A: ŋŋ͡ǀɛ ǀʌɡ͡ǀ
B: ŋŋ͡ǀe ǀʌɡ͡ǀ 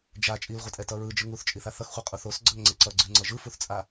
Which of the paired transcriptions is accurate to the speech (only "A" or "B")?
B